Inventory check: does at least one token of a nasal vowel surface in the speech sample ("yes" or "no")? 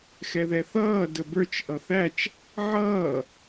no